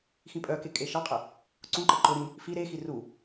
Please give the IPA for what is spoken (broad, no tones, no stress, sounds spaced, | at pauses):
x ĩ pʼ œ k e kʼ e ʃ ɑ qʼ ə | ǀ ũ ǃ ə ǃ ʊ ɾ ĩ | f i ɾ e x i r u